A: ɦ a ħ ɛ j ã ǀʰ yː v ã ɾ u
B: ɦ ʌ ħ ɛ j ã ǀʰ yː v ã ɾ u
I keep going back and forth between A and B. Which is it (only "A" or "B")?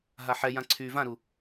A